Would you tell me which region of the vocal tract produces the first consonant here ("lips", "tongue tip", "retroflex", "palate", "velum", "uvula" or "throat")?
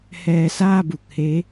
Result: throat